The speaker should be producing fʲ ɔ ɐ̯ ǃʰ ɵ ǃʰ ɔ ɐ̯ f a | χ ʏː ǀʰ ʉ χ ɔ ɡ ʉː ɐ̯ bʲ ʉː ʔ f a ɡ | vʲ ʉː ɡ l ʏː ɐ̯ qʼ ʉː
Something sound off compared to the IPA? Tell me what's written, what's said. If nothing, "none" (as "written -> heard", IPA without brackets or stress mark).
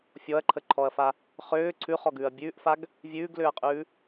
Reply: ɵ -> ə